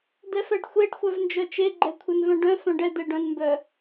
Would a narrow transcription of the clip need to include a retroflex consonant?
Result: yes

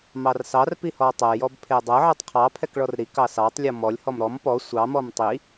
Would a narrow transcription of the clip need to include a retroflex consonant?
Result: yes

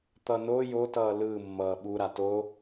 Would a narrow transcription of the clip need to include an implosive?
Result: yes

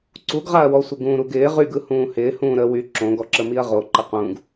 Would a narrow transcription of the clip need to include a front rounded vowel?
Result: yes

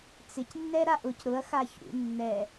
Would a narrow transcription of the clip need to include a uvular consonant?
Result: no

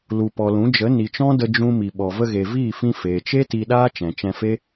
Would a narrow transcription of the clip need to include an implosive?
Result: yes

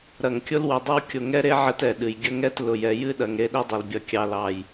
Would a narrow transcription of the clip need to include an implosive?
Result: yes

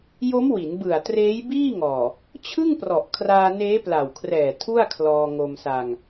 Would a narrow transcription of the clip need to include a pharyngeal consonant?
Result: no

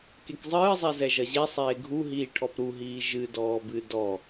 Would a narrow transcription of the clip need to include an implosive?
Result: no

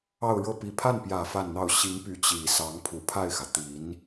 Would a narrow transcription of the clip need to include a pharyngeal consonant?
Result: no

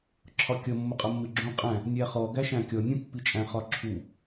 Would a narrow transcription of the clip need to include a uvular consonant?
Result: yes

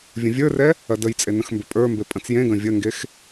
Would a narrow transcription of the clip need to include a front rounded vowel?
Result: yes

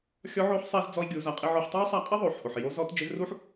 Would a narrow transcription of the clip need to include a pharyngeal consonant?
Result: yes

